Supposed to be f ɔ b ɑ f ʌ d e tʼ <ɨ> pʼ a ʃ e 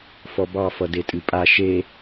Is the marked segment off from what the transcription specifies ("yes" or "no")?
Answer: no